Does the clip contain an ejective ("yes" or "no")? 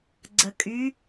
yes